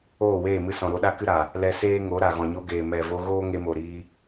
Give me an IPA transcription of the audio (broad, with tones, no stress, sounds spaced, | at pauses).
oː˦˨ w eː˦˨ m ɨ˧ s ɔ̃˨ ɾ o˧ ɗ a˦ k ɨ˦ ɾ a˨ | l ɛ˧ s eː˦ ŋ o˨˦ ɾ a˨ ɣ ɔ̃˨ ɲ o˧ ɡ eː˨ m ɛ˨ v o˧ ɣ oː˦ ŋ e˧ m o˨ ɾ iː˧